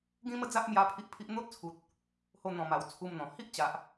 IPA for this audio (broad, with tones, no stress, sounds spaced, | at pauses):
ɡ ĩ˦ m ə˦ d͡z a˦ ʔ m j a˦ pʰ i˦ ʔ pʰ i˦ ʔ n̪ o˦ t̚ t͡sʰ u˨ t̚ | h o˧ n̪ ɔ̃˨˩ m a˨˩ w t͡sʰ u˧ m n̪ ɔ̃˨˩ h i˦ ʔ t͡ɕ a˨ ʔ